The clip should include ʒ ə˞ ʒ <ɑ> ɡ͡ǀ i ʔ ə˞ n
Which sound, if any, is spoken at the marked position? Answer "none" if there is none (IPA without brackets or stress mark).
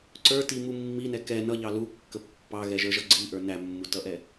ʌ